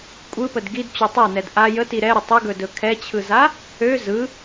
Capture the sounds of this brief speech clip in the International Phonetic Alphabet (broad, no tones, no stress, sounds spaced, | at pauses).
kʷʼ ɯ p ə d ɡ i d t͡ɕ ɵ tˤ a n ɛ d ʔ a j ə t i ɾ ɛ ɾ ə tˤ ə ɡ ɵ d ɵ kʰ ɛ t͡ɕʰ ɯ z a | ø z ɯ